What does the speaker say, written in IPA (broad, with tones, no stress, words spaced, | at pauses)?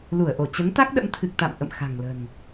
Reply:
lu˧˩ə̯ʔo˧˩ t͡ɕə˨˦nt̪a˦˥k̚ɗə̰˧˥mt̪ʰɨ˨˩k̚ t̪a̰˧˨mʔə̰˧˨m xa̤˨˩ŋlə̤˨˩n